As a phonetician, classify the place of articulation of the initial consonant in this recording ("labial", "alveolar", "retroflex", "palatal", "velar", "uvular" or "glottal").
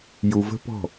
palatal